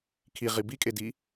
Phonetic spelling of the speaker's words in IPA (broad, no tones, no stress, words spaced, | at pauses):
kʰiʁi bikʼedi